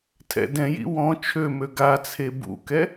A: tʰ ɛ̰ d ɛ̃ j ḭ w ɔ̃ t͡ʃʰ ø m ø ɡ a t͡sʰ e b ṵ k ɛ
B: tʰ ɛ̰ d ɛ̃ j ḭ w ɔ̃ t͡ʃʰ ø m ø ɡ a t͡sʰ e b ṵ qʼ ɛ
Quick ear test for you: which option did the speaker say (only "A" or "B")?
A